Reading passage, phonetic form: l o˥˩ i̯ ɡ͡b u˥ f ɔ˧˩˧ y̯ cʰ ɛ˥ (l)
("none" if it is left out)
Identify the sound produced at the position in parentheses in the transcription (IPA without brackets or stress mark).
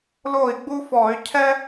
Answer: none